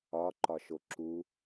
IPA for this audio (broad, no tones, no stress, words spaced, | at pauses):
ɒ ǃɒʃoǁu